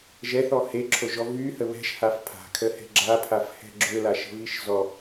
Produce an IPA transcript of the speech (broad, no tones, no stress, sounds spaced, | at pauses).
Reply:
ʒ ɛ θ ɔ h e ǁʰ o ʒ ɔ v y h ə β ɛ̤ ʃ h a f pʰ a̤ kʰ ə h ɛ̤ ɡ͡ǁ a pʰ a f h ɛ̤ ɡ͡ǁ ø l a ʃ ə̤ v i ʃ z ɔ